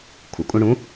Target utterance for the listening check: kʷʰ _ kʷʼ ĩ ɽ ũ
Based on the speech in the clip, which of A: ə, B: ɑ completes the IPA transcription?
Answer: A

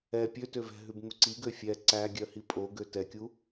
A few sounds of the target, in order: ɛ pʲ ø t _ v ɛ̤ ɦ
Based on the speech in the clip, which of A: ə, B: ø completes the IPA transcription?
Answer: B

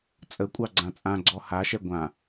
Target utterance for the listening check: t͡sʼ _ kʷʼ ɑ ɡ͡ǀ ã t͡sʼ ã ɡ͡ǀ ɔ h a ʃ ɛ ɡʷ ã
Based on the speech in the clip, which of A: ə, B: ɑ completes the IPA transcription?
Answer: A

